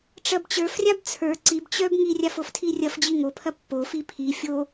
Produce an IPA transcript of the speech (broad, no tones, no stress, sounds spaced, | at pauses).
ʈ͡ʂ ɐ b t͡ɕ ə˞ f rʲ a b t͡sʰ ə˞ ǀ i b t͡ɕ œ b ŋ i rʲ a f o f tʰ i rʲ ɐ f d͡ʑ i ŋ o pʰ ɐ pː o f i pʰ i fʲ o